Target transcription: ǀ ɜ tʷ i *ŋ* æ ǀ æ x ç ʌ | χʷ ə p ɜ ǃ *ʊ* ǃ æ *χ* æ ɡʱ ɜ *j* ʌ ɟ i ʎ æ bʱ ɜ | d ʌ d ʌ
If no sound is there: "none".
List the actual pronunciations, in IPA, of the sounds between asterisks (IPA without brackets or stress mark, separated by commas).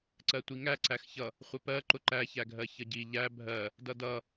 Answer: ŋ, ʊ, ç, ç